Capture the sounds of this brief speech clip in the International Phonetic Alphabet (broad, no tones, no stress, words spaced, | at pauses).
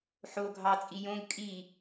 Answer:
ħo ɡʱɑt͡sʼi jõɡ kʼi